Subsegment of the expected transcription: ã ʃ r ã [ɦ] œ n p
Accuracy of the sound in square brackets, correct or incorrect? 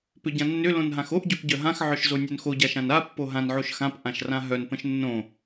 correct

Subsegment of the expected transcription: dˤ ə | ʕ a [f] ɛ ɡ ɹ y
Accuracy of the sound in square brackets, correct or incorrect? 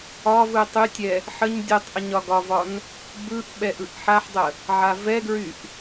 incorrect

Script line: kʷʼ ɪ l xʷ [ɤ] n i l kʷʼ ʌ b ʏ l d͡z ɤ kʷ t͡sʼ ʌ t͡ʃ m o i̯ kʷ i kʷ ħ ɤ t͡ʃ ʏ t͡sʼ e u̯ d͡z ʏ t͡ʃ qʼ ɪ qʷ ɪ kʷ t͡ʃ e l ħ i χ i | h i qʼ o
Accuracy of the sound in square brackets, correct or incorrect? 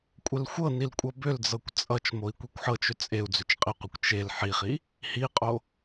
correct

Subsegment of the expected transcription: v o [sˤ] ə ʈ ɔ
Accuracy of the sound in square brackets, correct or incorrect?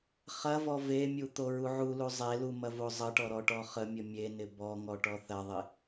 incorrect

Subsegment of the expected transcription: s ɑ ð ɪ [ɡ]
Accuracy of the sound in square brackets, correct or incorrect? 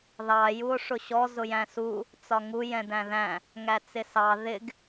correct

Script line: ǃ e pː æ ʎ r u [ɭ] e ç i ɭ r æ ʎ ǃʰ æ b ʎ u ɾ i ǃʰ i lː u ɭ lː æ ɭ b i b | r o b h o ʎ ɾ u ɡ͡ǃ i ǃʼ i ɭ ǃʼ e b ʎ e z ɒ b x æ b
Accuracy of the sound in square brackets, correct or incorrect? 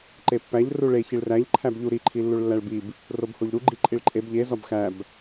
correct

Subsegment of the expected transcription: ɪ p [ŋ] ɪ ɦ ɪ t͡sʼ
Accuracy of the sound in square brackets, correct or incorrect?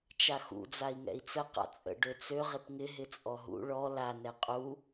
correct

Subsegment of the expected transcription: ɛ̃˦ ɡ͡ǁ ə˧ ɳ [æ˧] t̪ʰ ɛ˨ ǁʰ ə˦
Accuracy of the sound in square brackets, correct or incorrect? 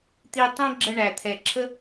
incorrect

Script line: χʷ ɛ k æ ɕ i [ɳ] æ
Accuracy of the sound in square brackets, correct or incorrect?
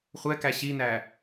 incorrect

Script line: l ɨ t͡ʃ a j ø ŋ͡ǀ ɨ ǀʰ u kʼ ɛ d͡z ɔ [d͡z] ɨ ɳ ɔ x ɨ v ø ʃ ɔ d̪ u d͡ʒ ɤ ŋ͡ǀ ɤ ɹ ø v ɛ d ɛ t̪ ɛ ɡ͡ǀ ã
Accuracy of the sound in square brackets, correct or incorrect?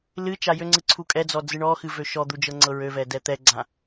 correct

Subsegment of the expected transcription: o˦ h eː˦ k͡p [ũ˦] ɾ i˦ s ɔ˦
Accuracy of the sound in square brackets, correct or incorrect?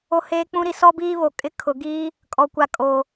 correct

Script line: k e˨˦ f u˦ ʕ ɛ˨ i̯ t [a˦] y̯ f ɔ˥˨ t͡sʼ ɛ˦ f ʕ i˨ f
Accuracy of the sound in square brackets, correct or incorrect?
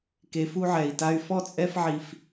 correct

